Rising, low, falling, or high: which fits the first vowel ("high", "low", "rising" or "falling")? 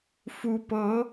rising